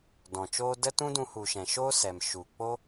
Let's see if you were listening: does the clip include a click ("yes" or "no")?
no